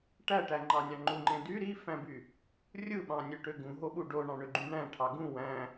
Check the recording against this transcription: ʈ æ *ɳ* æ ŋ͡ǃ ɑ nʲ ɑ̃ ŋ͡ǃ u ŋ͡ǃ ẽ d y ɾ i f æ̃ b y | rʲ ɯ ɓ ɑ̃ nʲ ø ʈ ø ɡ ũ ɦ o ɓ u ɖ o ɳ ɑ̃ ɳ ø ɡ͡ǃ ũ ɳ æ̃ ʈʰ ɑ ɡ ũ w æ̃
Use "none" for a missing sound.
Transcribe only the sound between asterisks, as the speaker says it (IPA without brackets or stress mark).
ʈ